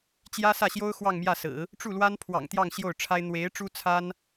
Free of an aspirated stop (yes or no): no